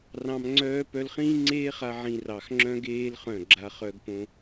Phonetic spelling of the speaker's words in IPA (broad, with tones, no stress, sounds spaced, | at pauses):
r ɑ̃˧ m ŋ͡ǀ œː˦ p œ˧ l χ ĩː˦ ŋ͡ǀ eː˦ χ a˧ ʕ ĩ˧ r ɑ˨ x ŋ͡ǁ œ̃˦ ɡ eː˦ l χ œ̃˦˨ ɡ͡ǁ a˦ χ œ˧ ɡ p õ˧